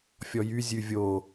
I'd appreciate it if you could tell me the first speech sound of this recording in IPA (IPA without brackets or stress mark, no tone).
fʲ